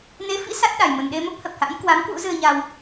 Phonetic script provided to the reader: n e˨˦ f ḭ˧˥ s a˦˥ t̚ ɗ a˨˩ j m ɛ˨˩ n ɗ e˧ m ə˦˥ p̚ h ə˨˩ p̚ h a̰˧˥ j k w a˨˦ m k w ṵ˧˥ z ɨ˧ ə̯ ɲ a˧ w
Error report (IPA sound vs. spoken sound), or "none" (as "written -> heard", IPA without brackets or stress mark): ɛ˨˩ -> ə˨˩